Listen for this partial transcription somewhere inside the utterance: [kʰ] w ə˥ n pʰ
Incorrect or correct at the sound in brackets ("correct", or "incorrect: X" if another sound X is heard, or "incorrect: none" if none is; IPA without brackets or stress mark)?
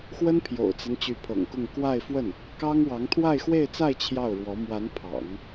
incorrect: x